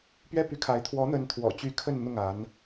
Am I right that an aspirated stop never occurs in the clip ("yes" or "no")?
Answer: no